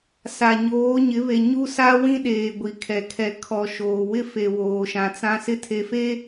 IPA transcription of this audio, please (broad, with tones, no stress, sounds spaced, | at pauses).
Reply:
s a˨ ɲ oː˨˦ ɲ ɪ˨˦ β e˨ ɲ u˦ s a˦ w ĩ˦ ɗ eː˨ ɡʷ i˨ kʰ ɛ˨ kʰ ɛ˨ kʰ ɔ˨ ʃ oː˨ w ɪ˦ f e˨ w oː˨ ʃ ã˨ t͡s ã˦ s ɪ˦ tʰ e˨ f e˦